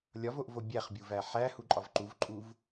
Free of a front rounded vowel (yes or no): yes